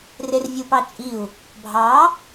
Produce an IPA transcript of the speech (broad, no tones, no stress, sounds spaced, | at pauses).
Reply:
r e r vʲ ɯ p ɑ t͡ʃʼ i u̯ | bʱ ɑ